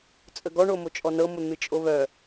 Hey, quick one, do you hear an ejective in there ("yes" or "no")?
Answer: yes